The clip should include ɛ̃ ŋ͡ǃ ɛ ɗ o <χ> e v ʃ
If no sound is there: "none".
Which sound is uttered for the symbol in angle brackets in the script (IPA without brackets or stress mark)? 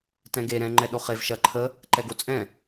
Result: χ